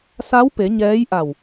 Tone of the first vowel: rising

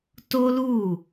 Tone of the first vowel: high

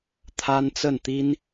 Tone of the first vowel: high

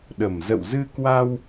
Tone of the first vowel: low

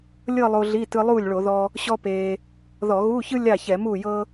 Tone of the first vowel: falling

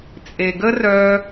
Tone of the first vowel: low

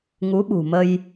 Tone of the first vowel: rising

